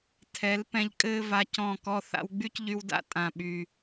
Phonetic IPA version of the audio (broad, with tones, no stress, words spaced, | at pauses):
tʰɛ˨˦l pɛ̃˧ʎ kʼɘː˦va˧ cɔ̃˦˨kɔ˦ θa̰˧wɡ͡by˦cʎy˧wda̰˦ tʼã˨ɓy˨